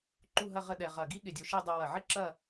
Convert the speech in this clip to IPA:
ǃ u˥˧ ɦ ɐ˥˧ ʁ ə˥˧ ɗ ɛ˧ ʁ ɐ˧˩ ɡ i˥ ɠ ɪ˧ dʲ o˧ ʃ i˥˧ dˤ o˧ w ɐ˧˩ ʕ ɪ˥˧ ǁ ɐ˥˧

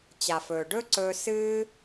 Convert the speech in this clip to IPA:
t͡ɕ a˨ f ɵː˨ ɖ ɵ˦ ǀ ɵː˧ s ɨː˦

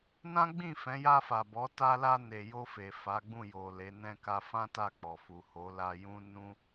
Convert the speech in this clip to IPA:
n ã˦ ɡ͡b ĩ˦˨ f ɛ̃˨˦ j a˧ f a˨ b ɔ˨˦ t a˧ l a˧ n e˨ j o˧ f e˨ f a˨˦ ɡ͡b ũ˦˨ j o˨ l e˨˦ n ɛ̃˧ k a˧ f ã˦ t a˦˨ k͡p ɔ˨ f u˨ h o˨˦ l a˧ j ũ˦ n ũ˦

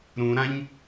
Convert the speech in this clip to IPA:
ɾ ũ ɾ ã ɲ

